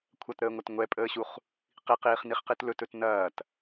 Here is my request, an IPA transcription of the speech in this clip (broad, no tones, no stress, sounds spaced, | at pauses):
kʷʰ ɐ t ɾ əː ŋʷ ɐ t ŋʷ ɛ pʼ əː ɕ u χ | q i q iː χ n i χ q i t l ɵ t ɵ t n ɐː t